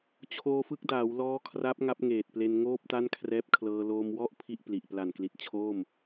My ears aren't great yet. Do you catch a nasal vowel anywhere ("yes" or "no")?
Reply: no